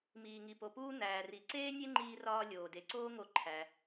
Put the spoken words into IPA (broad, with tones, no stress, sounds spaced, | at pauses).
m iː˩ ŋ i˩ p o˩ p uː˧ n̪ æː˩ r i˩ ǀ eː˥ nʲ e˥ ŋ͡ǃ iː˧ r ɒː˧ lʲ oː˩ d e˩ ǀ oː˥ ŋ o˧ ǃʰ æ˩